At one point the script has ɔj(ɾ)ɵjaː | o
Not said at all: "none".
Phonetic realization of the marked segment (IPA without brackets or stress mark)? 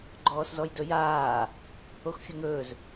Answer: d